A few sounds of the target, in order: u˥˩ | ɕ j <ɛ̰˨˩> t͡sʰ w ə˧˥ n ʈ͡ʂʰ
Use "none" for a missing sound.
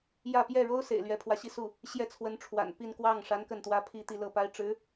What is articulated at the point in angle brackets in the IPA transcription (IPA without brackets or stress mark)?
ɛ˥˩